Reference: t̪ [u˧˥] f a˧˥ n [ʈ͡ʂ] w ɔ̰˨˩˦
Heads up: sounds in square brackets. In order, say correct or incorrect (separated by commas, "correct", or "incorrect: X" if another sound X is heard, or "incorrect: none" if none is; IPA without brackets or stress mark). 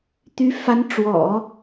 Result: incorrect: y˧˥, correct